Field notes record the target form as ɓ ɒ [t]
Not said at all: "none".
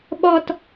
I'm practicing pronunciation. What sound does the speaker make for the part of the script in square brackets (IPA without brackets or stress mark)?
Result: t